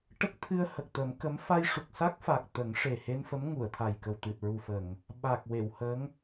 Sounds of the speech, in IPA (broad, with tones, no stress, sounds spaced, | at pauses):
ʈ ə˦˥ k̚ t̪ʰ ɨ˧ ə̯ h ə˨˩ k̚ t̪ ə˨˩˦ m k ə˧˥ m f a˧ j ʂ u˨˩ k̚ s a˦˥ k̚ f a˨˩ k̚ t̪ ə˨˩˦ ŋ ʂ e˨˩ h e˧ n f ə˧˥ m ŋ u˨˩˨ ə̯ t̪ʰ a˨˩ j k ə˨˩ w t̪ ɨ˨˩ t̚ ɹ u˨˩ f ə˨˩˨ ŋ | ɓ a˨˩ k̚ w e˨˩˨ w h ə˧˥ ŋ